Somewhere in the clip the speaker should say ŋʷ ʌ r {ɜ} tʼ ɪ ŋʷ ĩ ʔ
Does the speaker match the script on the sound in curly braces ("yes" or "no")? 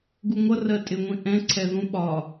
yes